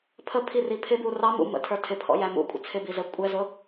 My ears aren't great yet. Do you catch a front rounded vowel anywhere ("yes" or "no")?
no